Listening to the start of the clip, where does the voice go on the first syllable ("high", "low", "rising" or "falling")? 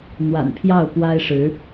low